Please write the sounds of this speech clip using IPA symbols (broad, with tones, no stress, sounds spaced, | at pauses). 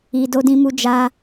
i˨ d o˧ d ĩ˧ m u˧ d͡ʒ a˧